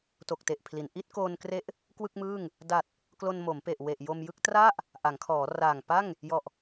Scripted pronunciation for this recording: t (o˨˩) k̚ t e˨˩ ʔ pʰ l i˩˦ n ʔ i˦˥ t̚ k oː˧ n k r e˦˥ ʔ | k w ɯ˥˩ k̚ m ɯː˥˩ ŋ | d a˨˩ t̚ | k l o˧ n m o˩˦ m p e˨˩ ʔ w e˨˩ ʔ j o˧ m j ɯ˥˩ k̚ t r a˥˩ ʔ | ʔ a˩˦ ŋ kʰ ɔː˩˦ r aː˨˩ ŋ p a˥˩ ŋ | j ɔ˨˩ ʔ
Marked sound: correct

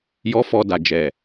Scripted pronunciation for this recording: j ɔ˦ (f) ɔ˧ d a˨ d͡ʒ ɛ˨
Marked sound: correct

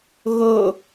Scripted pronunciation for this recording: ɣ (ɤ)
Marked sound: correct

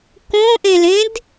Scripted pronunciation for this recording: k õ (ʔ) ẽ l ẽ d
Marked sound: correct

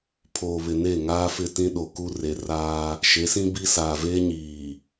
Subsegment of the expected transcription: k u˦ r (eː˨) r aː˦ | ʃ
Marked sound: incorrect: e˨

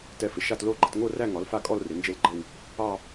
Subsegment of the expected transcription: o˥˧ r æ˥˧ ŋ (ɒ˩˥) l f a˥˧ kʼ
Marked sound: correct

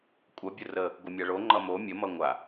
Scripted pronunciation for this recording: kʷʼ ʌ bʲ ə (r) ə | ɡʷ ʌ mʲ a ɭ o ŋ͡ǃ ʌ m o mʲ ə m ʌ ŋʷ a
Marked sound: correct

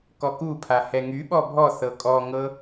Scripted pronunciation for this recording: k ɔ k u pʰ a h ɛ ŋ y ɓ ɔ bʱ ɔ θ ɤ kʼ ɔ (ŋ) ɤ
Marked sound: correct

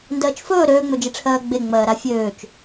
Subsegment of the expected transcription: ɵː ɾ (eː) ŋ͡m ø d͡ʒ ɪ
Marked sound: incorrect: øː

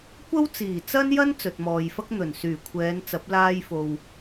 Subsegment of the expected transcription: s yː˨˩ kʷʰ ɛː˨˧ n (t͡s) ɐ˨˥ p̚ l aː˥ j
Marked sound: correct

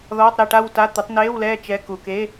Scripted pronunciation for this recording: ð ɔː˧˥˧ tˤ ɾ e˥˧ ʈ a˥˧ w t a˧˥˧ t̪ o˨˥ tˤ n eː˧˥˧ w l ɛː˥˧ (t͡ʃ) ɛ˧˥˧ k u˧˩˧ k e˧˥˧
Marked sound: correct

